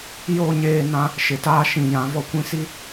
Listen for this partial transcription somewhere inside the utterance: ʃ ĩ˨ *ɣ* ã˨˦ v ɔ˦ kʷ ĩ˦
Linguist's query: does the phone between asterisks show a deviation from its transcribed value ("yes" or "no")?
yes